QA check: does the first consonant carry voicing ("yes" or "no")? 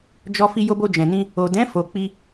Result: yes